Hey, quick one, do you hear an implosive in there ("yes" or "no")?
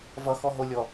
no